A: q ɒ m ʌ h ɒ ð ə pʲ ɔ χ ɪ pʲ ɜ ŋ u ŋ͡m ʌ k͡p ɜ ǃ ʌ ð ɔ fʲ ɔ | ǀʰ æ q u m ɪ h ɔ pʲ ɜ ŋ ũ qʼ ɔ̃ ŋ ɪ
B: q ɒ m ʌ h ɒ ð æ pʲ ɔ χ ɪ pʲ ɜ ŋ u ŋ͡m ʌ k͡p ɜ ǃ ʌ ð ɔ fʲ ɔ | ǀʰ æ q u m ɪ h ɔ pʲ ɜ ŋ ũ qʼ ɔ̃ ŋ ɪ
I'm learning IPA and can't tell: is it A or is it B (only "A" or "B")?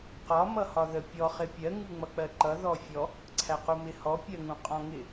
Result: A